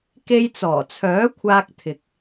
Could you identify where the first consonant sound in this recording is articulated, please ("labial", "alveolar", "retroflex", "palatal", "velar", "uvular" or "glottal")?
velar